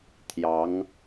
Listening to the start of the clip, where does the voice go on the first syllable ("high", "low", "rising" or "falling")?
rising